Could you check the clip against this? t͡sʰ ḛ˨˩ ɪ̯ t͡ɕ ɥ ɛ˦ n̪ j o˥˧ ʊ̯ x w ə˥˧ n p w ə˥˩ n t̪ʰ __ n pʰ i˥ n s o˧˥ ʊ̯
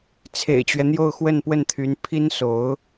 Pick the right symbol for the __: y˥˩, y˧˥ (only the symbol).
y˧˥